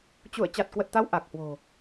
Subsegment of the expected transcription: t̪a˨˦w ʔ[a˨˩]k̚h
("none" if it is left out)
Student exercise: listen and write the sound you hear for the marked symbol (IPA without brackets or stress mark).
a˨˩